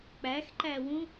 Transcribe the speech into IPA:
k͡p æ x ǃ æ w ũ

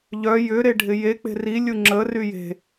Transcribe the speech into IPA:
ʎ œ j ʏ ɾ e ɖʱ ɪ j e k͡p e̤ r i lʲ u ŋ͡ǁ ə r y j e̤

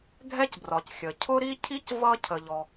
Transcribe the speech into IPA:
ɡʱ ɛ˥ c b r ɒ˩ c xʲ ə˩ cʰ ʊ˥ ɾ i˥ cʰ i˥ c v ʌ˥ cʰ ə˩ ʎ ɔ˩

